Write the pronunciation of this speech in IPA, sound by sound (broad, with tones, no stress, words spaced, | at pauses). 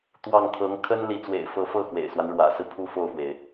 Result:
t̪wɑ˥˩ŋt̪ʰɤ˧˥ŋ kʰə˥n li˧˥t͡swḛ˨˩ɪ̯fɤ˧˥fɤ˥˩ xwḛ˨˩ɪ̯swa˦n ɻwä̰˨˩sɹ̩˦ pʰu˥fo˥˩ʊ̯fwe˩ɪ̯